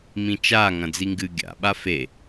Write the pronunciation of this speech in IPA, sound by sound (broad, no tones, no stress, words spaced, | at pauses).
mĩt͡ʃaŋɐ̃ d͡ziŋɡɨ ɡʲa̰ɓa fe